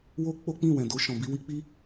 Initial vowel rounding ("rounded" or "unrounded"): rounded